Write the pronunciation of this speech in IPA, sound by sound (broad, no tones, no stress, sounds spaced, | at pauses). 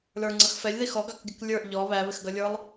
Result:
l ə˞ ŋ͡ǀ ʌ x f ɛ lʲ ð i x ɔ ɡ ɑ k ɡʲ ə k lʲ ə˞ ʔ ʎ ɔ β æ β ɪ x ɡ ʌ lʲ ə˞ lˠ